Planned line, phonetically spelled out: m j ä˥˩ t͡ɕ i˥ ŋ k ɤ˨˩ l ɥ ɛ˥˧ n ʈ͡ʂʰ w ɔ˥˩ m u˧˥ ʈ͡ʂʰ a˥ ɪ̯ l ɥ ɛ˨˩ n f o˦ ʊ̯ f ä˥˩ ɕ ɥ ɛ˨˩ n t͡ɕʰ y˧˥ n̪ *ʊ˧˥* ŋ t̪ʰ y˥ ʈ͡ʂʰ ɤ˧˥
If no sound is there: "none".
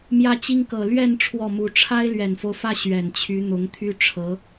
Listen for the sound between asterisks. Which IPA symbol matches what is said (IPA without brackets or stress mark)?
ʊ˧˥